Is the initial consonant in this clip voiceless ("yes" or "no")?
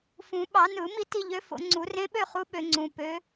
yes